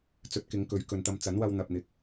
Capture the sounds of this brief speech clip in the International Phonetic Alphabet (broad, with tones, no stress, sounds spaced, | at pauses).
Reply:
t͡s ɵ˨˥ t̚ k ɪ˨˥ ŋ k ɵ˨˥ ɥ k ɵ˨ n t̪ ɐ˧ m t͡s ɐ˨˥ n w ɐ˧ w n̪ ɐ˨ p̚ n̪ ɪ˨ k̚